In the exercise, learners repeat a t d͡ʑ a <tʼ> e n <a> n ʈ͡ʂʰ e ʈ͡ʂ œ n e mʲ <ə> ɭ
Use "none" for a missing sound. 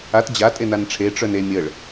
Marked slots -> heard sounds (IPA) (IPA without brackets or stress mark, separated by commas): tʼ, a, ə